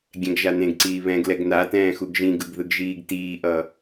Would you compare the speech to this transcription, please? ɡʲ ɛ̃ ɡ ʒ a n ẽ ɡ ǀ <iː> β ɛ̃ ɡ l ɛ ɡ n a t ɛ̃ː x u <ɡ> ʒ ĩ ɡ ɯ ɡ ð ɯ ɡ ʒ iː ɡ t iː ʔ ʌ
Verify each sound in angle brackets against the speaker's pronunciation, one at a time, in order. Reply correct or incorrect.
correct, correct

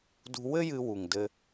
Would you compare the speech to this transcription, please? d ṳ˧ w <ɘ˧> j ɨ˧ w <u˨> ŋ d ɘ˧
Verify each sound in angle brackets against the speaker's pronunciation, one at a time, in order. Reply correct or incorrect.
incorrect, correct

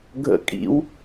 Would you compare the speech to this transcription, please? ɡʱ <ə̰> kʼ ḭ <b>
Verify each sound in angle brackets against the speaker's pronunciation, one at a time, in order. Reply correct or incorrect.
correct, incorrect

